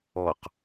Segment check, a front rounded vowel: absent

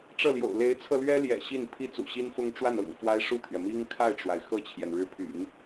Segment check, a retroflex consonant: present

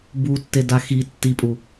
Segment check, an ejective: present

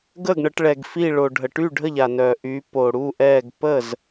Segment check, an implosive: absent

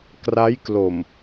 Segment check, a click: absent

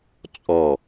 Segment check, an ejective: present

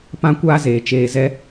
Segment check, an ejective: absent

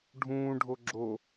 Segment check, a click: present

